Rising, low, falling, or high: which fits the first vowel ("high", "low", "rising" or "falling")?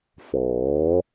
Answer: rising